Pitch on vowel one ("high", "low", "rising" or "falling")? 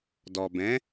low